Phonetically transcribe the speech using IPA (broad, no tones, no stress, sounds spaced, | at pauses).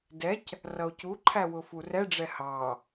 d ɛ c | r ʌ o̯ c u ǃʰ æ w ʊ f u r ɛ ɖ͡ʐ ɛ h ɑ